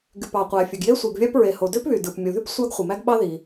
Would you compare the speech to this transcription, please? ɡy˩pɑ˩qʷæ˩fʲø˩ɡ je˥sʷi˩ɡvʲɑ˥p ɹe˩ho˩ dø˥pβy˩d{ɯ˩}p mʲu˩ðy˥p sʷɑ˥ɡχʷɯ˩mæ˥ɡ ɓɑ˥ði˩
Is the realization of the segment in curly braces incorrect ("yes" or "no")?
no